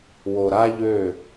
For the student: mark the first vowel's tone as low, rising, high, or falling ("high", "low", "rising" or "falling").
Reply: low